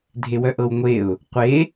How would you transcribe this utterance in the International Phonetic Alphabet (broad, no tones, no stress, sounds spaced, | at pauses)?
dʱ e w œ ʔ ɤ w ŋʷ e ʊ̯ | qʷ e